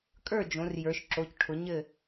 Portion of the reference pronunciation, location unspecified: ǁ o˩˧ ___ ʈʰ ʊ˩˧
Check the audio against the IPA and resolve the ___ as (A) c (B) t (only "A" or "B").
A